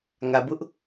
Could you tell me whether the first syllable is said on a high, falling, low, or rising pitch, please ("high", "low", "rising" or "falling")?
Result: low